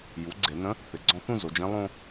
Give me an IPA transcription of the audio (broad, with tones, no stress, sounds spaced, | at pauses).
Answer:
j u˩˥ ɡ͡ǀ e˧˩˧ n ə̃˧˥ | θ ɪ˩˧ ɡ͡ǀ ɔ̃˧ θ ũ˥˧ z o˩˧ d͡ʒ ẽ˧˥ lˠ õ˧